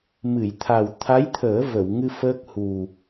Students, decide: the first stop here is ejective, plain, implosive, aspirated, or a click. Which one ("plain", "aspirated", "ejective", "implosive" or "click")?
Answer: aspirated